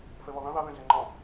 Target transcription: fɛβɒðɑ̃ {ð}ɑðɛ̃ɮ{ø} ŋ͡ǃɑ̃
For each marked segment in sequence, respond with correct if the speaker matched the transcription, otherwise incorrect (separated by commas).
correct, incorrect